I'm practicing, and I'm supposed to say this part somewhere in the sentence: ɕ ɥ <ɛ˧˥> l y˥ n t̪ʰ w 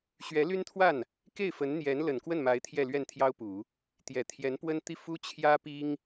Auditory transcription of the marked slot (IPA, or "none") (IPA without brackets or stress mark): ɛ˧˥